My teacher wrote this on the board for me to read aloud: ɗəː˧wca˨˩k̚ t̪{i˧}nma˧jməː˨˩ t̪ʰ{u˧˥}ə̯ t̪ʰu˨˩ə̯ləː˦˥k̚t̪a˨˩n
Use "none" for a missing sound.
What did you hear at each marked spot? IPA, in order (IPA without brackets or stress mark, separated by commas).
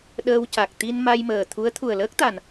i˧, u˧˥